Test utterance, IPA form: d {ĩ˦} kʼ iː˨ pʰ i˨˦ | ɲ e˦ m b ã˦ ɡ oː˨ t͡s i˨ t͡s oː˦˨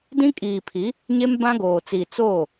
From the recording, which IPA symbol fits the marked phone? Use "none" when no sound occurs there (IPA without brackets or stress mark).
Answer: ĩ˦